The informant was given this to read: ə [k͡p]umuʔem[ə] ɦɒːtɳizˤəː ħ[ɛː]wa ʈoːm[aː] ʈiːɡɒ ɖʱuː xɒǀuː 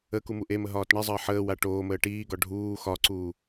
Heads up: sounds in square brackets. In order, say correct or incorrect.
incorrect, correct, incorrect, incorrect

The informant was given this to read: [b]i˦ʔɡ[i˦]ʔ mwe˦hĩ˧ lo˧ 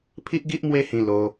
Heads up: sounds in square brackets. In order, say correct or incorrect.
incorrect, correct

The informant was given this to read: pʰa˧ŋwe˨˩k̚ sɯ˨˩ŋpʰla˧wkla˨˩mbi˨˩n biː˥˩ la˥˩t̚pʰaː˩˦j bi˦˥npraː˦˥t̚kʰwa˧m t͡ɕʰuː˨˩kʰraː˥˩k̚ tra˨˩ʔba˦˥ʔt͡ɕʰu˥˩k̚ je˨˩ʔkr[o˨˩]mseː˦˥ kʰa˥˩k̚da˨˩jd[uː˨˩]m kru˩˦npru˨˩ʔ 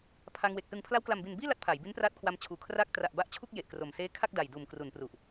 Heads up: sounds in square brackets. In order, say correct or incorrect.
correct, correct

